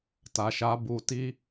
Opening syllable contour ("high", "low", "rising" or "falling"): low